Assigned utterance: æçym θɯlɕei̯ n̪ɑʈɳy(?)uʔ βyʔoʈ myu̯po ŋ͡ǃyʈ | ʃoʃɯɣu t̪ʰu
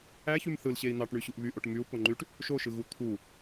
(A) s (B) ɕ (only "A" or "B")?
B